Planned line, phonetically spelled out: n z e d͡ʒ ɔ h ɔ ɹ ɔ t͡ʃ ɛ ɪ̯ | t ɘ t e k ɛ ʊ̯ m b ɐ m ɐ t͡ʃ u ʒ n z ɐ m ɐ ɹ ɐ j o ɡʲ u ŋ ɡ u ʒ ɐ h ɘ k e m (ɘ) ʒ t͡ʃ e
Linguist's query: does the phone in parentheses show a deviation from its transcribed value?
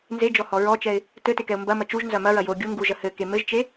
no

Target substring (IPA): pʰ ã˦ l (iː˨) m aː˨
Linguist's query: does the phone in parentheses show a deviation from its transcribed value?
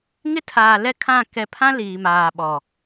no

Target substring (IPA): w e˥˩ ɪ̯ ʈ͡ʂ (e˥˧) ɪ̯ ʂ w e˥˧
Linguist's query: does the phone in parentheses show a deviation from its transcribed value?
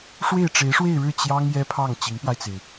yes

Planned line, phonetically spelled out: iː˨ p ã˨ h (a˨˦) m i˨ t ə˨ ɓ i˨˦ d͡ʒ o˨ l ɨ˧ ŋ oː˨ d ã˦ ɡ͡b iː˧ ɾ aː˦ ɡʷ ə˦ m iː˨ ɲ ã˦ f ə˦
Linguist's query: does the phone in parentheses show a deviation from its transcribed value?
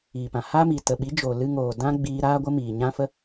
yes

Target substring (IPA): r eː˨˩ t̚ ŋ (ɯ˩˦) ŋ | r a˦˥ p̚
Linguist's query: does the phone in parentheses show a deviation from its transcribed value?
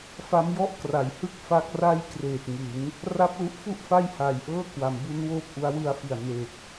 no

